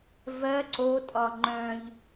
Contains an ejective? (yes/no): yes